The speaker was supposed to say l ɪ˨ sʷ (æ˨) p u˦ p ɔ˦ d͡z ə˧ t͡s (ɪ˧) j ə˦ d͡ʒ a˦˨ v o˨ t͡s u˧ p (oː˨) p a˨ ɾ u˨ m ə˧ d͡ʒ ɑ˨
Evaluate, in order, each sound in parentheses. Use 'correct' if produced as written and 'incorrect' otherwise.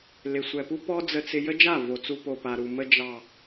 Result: incorrect: ɛ˨, correct, incorrect: o˨

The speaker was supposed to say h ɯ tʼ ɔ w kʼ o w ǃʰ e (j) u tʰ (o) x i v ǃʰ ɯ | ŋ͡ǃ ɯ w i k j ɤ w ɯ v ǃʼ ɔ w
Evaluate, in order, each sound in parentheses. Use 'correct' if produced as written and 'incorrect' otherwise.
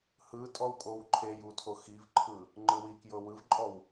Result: correct, correct

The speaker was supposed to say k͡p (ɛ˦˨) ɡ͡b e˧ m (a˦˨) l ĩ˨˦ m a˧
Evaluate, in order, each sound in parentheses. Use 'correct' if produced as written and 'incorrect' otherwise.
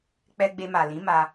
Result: incorrect: ɛ˧, incorrect: a˨

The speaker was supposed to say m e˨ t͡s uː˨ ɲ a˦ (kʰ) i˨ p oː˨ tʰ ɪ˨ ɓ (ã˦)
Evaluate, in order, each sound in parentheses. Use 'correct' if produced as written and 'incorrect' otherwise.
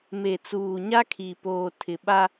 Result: correct, incorrect: a˦

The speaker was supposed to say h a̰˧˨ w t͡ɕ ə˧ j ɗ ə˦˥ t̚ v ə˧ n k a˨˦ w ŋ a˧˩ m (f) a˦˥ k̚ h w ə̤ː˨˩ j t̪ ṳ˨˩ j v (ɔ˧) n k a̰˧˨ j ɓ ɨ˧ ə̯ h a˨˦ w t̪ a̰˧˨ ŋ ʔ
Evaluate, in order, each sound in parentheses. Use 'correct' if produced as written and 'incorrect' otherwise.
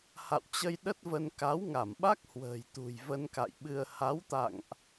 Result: incorrect: ɓ, incorrect: ə˧

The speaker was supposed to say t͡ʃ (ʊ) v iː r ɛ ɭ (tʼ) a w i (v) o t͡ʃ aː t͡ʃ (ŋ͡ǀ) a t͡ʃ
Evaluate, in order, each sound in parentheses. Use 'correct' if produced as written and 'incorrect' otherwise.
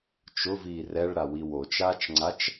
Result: correct, incorrect: ɾ, incorrect: w, correct

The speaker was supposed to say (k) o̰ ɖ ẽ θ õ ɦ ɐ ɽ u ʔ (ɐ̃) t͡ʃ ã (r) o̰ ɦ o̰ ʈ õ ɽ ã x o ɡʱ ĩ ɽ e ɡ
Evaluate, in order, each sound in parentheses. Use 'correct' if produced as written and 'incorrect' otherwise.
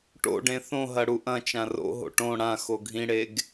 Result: incorrect: ʈ, correct, correct

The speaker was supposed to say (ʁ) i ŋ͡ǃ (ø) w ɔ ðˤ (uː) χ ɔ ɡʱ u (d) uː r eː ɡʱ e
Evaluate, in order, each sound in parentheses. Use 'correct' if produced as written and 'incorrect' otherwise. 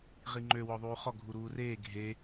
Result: correct, correct, correct, incorrect: ɾ

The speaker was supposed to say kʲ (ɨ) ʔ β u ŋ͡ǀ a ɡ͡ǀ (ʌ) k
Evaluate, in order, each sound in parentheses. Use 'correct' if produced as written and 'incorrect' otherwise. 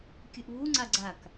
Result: correct, incorrect: a

